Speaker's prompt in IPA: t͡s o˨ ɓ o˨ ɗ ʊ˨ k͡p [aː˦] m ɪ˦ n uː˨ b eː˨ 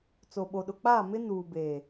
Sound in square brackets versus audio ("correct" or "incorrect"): incorrect